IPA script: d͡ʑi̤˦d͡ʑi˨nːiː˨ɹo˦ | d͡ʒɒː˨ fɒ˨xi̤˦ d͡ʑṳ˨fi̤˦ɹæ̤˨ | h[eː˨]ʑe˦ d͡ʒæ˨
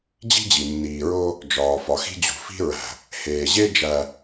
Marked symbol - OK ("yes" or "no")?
yes